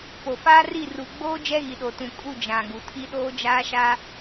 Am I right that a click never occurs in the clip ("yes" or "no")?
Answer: yes